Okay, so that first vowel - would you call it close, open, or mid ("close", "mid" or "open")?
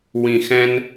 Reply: close